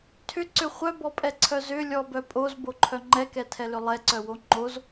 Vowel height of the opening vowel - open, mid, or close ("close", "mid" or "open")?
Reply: close